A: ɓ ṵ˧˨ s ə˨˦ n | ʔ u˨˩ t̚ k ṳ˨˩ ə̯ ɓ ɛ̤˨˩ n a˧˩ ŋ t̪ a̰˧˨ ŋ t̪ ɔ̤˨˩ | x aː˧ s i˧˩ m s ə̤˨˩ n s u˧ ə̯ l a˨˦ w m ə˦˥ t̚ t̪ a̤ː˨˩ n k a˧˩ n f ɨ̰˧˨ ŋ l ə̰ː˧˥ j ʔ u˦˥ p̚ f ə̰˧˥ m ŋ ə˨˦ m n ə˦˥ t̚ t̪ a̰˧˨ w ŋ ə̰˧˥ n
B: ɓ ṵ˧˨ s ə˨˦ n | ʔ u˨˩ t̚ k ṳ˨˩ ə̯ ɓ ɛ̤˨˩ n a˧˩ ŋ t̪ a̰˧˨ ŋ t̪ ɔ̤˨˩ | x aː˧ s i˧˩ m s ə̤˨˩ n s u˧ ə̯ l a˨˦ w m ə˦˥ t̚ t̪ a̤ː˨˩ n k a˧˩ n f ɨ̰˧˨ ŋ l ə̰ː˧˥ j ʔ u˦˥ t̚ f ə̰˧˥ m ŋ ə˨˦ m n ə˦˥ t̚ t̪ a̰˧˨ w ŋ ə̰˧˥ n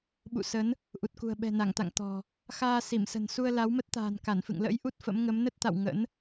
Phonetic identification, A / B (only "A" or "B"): B